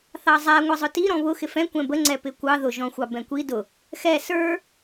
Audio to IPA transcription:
θ ɑ zˤ æ ŋʷ ʌ zˤ ʊ t i ɾ ɔ̃ β ʊ x ɪ f ɛ̃ kʷ ɛ̃ b ə ŋ͡ǀ ɛ p ɪ kʷ ɑ ð ʊ ʒ ɔ̃ xʷ ɑ b ɛ̃ kʷ i d ʊ | x ɛ s ə˞

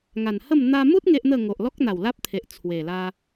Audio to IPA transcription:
ŋ a˨˩ n h ə˥˧ m n̪ a˧ m u˦ t̚ ŋ e˦ ʔ n̪ ə˥˧ ŋ o˨ ʔ l ɔ˦ k̚ n̪ a˨˩ w l a˦ p̚ t̪ʰ e˨ ʔ t͡sʰ w e˨˩ l a˦

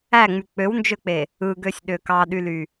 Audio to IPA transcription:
æ ŋ͡m y k͡p ø w n d͡ʒ ø k͡p e | ɯ ɡ ø sʲ ɗ ø k ɑ ɗ y l y

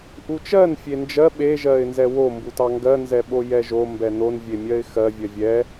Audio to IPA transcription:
ʔ u t͡ʃ ɜ n fʲ e n d͡ʒ ɜ ɓ e ʒ ɜ ɪ̯ n z ɛ w o m b u t ɑ ŋ ɡ ɜ n z ɛ ɓ o j ɛ ʒ o m b ɛ n o n vʲ e mʲ ɜ ɪ̯ x ɜ vʲ ɜ vʲ ɛ

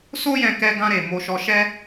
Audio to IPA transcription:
s o˦ j ɛ̃˧ k ɛ˧ ɡ ã˧ ɾ e˨ m o˧ ʃ ɔ˧ ʃ ɛ˦

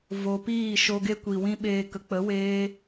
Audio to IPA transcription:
v o˨ p iː˦˨ ʃ o˧ ɡ e˦ kʷ i˨ w ĩ˦ ɓ eː˧ k ə˨ k͡p ə˨˦ w eː˧

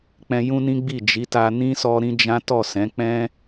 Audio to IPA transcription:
k͡p ɛ̃˧ j ũ˦ n ĩ˦ ɡ͡b i˦˨ d͡ʒ i˨˦ t a˧ n ĩ˦ s ɔ˧ ɾ ĩ˦ d͡ʒ ã˦ t ɔ˦˨ s ɛ̃˨˦ k͡p ɛ̃˦

